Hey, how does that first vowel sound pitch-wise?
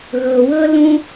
low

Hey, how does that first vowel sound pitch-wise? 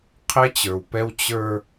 high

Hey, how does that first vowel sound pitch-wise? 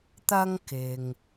high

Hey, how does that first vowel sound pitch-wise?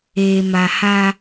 low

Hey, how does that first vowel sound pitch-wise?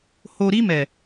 low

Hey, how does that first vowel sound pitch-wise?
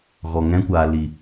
low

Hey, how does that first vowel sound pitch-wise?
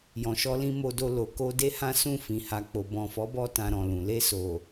low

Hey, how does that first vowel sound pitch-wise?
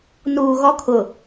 low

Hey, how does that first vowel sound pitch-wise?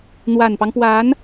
low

